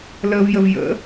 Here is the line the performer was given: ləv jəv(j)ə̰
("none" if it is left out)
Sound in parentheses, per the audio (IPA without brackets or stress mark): j